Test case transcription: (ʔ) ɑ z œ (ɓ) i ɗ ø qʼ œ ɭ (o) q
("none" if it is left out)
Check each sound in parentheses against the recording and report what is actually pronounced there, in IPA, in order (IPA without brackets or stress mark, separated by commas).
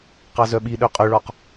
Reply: q, ɓ, ɔ